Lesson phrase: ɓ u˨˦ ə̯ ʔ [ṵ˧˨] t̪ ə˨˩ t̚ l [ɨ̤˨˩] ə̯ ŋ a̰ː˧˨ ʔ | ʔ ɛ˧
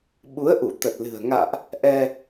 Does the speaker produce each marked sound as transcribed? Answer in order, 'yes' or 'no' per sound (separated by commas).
no, yes